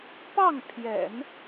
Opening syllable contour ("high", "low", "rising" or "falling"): falling